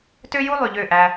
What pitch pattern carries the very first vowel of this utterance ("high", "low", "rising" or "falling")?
high